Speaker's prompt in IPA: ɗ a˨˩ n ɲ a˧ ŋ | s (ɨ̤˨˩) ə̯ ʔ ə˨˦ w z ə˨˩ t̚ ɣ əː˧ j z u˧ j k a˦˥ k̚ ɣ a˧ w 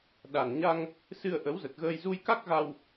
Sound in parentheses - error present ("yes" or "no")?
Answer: yes